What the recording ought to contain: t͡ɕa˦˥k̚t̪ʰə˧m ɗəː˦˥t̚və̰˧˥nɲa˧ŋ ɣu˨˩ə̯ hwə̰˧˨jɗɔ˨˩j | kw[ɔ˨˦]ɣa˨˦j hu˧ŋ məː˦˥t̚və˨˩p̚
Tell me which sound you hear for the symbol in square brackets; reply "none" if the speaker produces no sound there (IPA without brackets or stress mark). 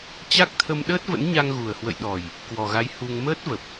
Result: ɔ˨˩